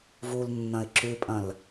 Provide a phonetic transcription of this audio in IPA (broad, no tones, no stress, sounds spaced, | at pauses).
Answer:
v u l nː ɐ̃ ɪ̯ ǁ ʉ pʼ ɐ̃ l